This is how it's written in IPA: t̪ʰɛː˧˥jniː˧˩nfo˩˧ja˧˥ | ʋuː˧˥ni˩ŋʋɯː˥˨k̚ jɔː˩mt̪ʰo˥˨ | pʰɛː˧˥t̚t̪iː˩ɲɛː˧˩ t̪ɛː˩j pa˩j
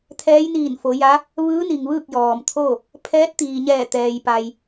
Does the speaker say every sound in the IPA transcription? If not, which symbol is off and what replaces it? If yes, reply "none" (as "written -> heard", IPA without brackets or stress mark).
uː˧˥ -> ɯː˧˥